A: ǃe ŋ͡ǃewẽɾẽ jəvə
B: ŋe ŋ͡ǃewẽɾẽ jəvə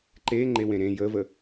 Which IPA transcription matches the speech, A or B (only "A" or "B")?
A